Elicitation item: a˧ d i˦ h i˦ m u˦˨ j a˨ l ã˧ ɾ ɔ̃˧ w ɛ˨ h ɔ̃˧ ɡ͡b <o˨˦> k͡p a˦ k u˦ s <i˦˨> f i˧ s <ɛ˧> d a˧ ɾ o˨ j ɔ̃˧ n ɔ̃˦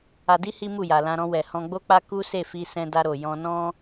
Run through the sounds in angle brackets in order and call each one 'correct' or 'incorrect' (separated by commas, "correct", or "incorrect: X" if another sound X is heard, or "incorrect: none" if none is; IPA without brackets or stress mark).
incorrect: o˦, incorrect: e˦˨, incorrect: ɛ̃˧